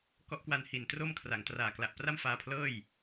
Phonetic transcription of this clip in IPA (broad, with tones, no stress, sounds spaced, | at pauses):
k ɔ˦˥ ʔ k w a˧ n h i˨˩ n t r o˥˩ m kʰ r a˩˦ ŋ t r aː˨˩ k l a˨˩ ʔ p r a˥˩ m f aː˦˥ pʰ l ɤː˥˩ j